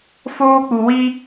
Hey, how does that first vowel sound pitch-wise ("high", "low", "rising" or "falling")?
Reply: high